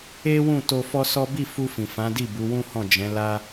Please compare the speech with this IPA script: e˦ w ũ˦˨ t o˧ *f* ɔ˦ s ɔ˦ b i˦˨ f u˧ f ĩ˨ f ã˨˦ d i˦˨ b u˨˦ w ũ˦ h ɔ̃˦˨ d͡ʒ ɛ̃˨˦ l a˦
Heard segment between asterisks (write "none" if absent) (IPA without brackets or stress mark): f